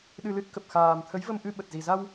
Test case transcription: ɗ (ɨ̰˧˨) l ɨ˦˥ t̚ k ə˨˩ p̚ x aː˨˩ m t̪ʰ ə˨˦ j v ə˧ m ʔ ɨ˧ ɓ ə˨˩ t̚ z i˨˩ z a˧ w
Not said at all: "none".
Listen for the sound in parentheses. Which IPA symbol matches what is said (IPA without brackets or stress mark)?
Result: ɨ˧